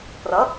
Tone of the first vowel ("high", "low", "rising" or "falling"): rising